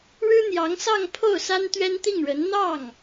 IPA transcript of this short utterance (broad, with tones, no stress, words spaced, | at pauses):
ɻɻ̩˥n̪jɑ˧˥ŋsɑ˥˧ŋ pʰo˥˩ʊ̯sa˥n t̪ɥɛ˥nt̪i˥˩ŋɻə˧˥n n̪ɑ˥˩ŋ